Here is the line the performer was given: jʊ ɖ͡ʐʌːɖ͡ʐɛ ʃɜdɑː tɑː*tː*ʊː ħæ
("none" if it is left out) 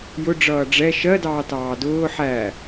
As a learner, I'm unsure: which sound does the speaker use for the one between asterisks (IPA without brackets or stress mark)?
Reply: d